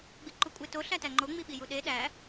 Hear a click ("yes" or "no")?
yes